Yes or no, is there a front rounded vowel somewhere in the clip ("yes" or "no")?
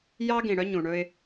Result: yes